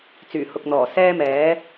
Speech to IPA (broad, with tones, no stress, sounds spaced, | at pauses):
t͡s yː˨˩ h ʊ˨ k̚ n̪ ɔː˨˩ s ɛː˥ m ɛː˨˥